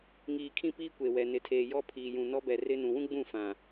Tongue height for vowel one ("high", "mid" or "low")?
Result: high